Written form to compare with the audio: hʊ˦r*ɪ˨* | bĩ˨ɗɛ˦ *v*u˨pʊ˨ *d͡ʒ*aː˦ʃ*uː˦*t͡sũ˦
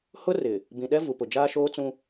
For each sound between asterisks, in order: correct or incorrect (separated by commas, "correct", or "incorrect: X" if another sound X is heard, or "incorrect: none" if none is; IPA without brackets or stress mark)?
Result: correct, correct, correct, incorrect: oː˦